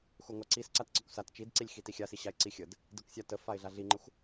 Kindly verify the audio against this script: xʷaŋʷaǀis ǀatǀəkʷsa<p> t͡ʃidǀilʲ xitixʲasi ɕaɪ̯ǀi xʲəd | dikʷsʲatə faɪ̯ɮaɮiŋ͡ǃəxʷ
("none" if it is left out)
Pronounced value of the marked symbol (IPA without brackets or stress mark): t